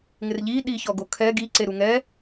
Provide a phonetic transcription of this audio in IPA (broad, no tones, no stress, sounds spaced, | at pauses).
ŋ ɪ r ʎ i ɗ i ç ɔ ɡ o kʰ ɛ ɡ i ǀ e ɾ u ŋ ɛ